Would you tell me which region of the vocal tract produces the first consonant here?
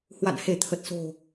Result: throat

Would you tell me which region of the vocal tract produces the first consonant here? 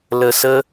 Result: tongue tip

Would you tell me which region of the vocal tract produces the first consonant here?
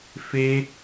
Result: lips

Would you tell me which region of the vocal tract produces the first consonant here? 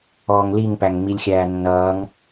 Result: velum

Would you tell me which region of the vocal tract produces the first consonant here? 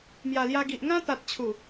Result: lips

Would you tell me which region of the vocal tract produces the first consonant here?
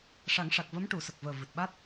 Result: retroflex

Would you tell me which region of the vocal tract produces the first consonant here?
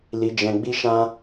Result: tongue tip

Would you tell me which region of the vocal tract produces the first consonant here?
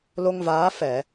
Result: tongue tip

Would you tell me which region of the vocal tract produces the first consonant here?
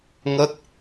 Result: velum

